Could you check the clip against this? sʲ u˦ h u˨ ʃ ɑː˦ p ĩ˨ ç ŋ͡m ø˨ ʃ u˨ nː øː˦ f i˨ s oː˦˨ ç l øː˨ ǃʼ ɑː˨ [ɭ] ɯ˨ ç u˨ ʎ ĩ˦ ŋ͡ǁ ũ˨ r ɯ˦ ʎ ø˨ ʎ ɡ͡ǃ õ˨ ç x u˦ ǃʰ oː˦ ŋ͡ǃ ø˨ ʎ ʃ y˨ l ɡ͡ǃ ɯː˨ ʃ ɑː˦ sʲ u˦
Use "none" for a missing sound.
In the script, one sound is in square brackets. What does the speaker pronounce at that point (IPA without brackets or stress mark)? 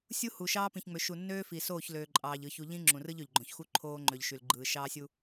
ʎ